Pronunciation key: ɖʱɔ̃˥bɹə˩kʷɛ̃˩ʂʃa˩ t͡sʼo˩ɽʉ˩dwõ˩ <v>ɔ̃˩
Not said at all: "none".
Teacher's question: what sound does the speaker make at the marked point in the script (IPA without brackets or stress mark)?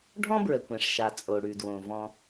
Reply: v